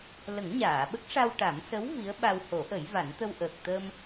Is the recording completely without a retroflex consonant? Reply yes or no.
no